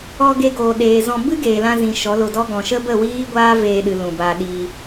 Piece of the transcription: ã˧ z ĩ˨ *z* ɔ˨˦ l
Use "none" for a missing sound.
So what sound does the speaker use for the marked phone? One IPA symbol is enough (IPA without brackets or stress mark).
ʃ